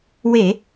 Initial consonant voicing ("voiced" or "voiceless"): voiced